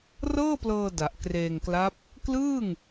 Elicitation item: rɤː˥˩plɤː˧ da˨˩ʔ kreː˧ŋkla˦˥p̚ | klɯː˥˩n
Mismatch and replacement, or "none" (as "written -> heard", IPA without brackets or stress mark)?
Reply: n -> ŋ